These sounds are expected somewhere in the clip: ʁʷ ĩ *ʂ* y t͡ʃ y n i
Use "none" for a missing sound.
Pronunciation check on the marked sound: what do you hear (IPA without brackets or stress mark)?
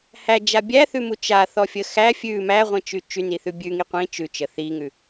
t͡ʃ